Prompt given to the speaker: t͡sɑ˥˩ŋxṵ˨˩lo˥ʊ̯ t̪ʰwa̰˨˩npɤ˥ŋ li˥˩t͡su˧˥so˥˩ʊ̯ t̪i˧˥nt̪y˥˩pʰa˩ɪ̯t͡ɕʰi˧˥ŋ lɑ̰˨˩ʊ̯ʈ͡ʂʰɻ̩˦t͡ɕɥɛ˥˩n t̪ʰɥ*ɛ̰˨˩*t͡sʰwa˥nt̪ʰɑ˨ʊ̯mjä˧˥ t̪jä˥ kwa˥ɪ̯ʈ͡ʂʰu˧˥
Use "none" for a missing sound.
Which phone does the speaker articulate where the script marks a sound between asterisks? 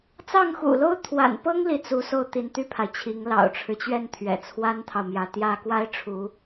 ɛ̰˨˩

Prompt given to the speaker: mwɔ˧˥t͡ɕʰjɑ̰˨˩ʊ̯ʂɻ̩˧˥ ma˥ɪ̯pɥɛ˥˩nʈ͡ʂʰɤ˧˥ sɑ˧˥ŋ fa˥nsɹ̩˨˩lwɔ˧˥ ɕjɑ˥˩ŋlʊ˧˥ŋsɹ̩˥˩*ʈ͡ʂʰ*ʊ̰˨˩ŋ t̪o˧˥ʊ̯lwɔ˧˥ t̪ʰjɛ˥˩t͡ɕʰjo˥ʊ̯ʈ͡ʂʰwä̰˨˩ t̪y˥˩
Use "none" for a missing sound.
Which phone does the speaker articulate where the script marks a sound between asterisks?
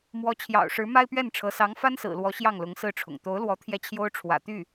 ʈ͡ʂʰ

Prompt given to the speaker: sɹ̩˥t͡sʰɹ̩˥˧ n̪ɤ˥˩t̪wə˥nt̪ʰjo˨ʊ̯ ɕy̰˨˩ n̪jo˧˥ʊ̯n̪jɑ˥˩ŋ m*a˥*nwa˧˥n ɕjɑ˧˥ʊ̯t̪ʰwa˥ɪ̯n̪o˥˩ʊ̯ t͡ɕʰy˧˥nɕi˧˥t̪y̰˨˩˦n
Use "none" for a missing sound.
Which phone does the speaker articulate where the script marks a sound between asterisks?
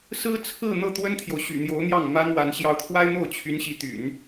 a˥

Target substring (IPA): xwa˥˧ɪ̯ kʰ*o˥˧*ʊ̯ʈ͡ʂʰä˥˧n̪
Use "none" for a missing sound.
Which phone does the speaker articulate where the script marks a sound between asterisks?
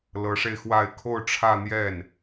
o˥˧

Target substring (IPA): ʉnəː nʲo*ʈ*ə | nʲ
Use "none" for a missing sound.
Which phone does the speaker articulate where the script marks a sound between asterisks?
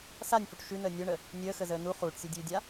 ɳ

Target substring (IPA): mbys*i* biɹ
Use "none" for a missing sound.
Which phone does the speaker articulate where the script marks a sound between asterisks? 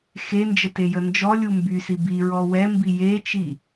i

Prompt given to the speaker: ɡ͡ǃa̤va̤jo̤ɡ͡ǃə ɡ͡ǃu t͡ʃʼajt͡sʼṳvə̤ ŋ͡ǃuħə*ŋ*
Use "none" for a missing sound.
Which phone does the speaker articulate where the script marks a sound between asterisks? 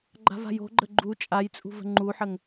ŋ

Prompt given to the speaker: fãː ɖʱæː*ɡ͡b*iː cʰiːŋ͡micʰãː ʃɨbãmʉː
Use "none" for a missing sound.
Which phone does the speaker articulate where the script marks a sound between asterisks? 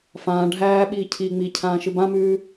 ɓ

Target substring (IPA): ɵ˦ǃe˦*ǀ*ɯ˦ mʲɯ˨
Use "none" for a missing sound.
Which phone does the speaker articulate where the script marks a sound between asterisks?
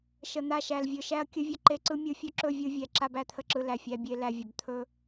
ǀ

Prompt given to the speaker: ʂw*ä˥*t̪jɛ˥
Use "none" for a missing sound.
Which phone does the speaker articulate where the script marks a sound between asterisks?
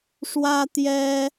ä˥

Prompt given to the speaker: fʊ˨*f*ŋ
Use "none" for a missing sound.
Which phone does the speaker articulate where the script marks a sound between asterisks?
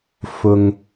none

